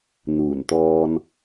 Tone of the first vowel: low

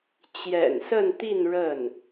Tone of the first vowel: low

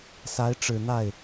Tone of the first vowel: rising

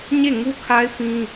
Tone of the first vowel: falling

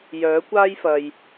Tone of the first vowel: rising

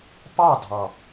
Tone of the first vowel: falling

